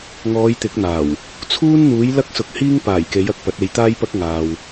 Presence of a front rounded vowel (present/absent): absent